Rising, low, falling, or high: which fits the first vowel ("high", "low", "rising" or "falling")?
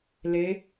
rising